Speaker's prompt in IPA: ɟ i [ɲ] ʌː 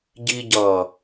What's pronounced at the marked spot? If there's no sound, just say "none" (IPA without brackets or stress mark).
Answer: ɟ